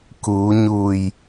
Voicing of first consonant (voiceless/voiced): voiceless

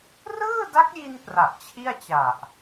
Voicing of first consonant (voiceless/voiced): voiced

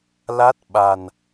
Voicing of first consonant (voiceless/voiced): voiced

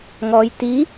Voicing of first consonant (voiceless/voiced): voiced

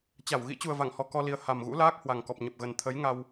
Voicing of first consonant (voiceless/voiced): voiceless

